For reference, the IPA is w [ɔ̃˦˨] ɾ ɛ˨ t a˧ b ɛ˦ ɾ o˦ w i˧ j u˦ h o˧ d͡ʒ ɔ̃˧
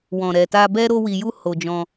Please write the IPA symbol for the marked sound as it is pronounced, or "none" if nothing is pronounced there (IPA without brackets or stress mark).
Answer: ɔ̃˨